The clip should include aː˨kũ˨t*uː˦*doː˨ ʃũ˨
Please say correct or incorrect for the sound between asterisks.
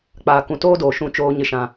incorrect